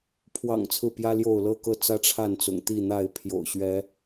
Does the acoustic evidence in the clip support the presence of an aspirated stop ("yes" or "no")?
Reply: yes